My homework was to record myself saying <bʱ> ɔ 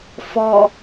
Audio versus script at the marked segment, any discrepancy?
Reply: yes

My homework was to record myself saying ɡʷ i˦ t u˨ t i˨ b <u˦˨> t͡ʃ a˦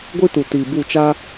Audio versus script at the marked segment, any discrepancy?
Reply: no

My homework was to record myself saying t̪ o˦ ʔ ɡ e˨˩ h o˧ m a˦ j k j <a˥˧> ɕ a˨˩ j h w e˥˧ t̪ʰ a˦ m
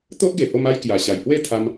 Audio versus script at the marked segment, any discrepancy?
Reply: yes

